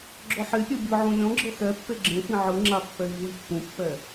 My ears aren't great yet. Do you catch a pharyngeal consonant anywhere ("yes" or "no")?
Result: yes